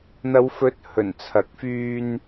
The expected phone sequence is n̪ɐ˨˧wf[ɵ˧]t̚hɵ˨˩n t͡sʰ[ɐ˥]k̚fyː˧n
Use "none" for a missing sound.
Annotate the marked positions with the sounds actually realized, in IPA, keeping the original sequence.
ɵ˨˥, ɐ˨

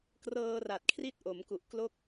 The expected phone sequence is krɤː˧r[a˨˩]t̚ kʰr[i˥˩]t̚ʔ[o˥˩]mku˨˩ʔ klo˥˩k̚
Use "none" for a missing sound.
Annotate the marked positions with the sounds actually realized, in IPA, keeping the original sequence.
a˨˩, i˥˩, o˩˦

